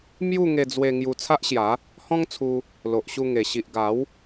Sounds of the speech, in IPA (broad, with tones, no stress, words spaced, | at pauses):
mju˥˧ ŋe˧d͡zwe˧ ŋju˧t͡sʰa˦ʔɕja˨˦ | hɔ̃˦ŋt͡sʰu˧ | lo˨ʔɕu˧ŋe˨˩ ɕi˨ʔɡa˨˦w